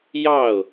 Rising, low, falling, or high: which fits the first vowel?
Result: falling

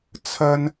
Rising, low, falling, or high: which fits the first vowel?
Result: high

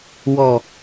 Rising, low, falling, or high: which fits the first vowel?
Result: low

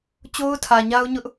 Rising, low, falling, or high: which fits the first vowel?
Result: high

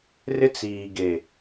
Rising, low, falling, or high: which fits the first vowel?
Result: high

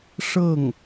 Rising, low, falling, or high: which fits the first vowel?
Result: falling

